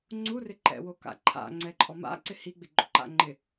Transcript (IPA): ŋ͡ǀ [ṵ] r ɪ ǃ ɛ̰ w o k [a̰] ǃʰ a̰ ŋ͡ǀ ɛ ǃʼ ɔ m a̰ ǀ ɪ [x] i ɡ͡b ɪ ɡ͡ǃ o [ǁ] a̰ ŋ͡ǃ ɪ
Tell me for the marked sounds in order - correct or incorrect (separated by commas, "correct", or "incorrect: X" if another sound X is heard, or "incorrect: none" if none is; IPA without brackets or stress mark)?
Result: incorrect: u, correct, incorrect: h, incorrect: ǃ